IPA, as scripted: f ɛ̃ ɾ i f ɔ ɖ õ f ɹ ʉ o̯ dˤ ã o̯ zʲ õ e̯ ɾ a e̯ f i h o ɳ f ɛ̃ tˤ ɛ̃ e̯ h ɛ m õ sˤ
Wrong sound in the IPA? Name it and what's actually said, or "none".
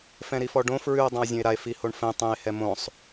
none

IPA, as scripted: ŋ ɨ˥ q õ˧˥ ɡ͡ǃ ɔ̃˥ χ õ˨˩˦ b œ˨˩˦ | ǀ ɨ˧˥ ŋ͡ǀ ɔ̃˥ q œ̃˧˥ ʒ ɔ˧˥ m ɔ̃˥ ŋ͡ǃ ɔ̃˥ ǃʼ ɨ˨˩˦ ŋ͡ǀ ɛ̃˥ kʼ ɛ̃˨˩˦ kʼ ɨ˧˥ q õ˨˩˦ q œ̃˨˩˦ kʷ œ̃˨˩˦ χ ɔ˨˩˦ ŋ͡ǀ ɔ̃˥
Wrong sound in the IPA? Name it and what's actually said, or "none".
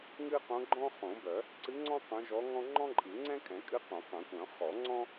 m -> ŋ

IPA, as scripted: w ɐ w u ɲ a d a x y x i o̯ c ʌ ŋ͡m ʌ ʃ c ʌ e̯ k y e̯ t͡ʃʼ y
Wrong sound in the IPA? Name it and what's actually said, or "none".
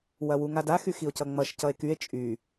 ɲ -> ŋ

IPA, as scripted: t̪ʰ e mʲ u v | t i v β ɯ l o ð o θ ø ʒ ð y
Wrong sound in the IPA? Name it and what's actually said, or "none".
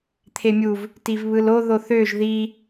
y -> i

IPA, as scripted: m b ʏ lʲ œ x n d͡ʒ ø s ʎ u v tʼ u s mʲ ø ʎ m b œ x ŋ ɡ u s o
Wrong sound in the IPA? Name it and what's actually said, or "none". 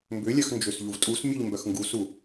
o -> u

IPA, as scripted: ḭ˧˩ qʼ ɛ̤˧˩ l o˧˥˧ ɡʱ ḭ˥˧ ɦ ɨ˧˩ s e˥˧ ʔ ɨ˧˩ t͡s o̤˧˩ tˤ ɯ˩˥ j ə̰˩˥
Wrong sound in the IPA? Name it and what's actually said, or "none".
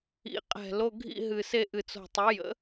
none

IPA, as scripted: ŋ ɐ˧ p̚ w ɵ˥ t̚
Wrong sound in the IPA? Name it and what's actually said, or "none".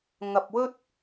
none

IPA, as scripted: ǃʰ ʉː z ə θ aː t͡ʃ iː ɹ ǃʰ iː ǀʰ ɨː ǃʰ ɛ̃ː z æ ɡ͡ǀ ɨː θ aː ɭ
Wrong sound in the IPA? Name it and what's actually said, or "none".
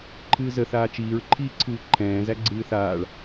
ʉː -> ɨː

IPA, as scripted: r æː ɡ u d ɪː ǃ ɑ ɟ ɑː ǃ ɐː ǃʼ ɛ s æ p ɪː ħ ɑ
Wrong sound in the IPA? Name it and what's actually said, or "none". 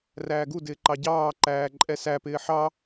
ɐː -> æː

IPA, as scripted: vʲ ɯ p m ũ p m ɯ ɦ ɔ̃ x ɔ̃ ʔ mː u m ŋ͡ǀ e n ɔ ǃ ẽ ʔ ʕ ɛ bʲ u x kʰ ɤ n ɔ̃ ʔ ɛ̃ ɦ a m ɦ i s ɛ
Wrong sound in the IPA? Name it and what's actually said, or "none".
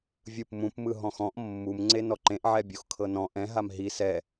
none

